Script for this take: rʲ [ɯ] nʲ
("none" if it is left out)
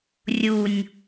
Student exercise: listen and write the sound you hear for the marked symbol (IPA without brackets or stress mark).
u